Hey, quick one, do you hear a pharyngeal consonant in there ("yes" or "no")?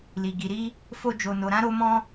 no